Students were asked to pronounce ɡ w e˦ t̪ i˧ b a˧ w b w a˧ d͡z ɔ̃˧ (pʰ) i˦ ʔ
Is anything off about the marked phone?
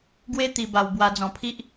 no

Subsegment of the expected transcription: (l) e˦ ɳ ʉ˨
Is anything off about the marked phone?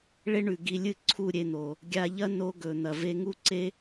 yes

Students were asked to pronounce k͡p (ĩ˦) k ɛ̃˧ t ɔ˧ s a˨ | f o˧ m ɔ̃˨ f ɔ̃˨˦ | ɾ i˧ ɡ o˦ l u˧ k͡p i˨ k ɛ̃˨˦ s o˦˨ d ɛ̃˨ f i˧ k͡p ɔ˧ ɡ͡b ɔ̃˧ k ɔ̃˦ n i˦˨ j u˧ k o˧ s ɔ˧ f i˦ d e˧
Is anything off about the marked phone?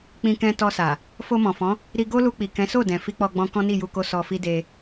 yes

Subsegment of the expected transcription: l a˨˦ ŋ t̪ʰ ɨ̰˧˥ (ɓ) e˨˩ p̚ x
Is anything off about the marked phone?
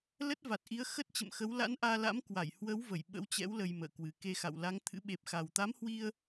no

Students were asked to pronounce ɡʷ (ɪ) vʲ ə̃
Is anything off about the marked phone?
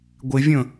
no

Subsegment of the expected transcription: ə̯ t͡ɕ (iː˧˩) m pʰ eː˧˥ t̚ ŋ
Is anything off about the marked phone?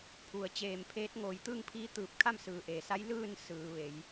yes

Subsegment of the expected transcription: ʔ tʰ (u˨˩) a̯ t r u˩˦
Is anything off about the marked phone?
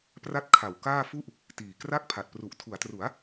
yes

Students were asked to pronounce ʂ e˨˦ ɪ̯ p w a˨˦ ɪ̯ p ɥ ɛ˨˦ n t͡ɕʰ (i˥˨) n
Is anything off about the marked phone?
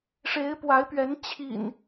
yes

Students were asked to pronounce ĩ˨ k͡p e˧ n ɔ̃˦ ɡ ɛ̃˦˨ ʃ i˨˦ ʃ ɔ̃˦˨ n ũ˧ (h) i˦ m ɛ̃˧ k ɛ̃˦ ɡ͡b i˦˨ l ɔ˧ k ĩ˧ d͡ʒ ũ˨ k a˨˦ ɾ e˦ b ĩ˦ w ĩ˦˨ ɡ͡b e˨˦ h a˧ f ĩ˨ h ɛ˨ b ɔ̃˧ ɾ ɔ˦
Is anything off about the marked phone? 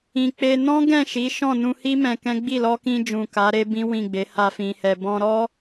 no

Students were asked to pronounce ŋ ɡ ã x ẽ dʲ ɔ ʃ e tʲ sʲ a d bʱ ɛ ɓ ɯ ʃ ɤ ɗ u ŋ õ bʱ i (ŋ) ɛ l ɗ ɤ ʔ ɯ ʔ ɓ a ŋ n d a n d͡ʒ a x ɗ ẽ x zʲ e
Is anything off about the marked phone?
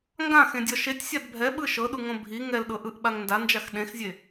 no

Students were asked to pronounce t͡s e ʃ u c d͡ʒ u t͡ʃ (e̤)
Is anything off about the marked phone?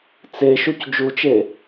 yes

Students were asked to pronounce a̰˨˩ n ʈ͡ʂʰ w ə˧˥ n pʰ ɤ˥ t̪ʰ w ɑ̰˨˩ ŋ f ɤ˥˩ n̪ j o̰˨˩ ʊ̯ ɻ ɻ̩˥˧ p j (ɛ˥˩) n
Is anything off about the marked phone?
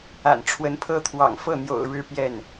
no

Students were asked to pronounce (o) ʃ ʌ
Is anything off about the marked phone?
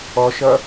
yes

